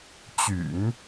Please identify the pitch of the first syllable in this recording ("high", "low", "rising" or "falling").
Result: low